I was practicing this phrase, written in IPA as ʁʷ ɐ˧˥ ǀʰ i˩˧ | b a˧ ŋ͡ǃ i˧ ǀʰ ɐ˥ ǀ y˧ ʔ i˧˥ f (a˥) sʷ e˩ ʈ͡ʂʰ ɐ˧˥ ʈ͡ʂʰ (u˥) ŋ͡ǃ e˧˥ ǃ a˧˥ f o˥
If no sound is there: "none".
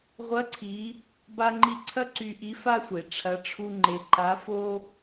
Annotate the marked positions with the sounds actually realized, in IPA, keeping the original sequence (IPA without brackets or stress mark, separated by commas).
a˥, u˥